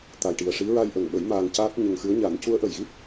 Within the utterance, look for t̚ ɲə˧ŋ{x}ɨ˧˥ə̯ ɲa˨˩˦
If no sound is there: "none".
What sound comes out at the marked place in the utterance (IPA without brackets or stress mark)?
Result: x